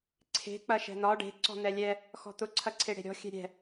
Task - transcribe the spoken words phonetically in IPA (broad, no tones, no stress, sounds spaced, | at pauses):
ǀʰ e̤ k͡p ɐ ʃ ɛ̤ n̪ ɒ ɖ e̤ ǀ ɔ̤ n̪ ɛ lʲ ɛ | x ɔ̤ t̪ ʊ ǀʰ ɐ ǀʰ e ɽ e̤ ɾʲ ɔ̤ xʲ ɛ̤ ɾʲ ɛ̤